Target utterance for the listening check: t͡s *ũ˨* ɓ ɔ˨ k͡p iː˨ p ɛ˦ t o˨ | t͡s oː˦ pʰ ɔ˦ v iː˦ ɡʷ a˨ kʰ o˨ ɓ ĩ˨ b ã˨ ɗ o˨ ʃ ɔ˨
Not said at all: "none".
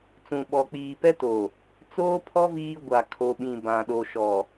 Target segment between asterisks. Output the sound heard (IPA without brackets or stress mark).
ũ˨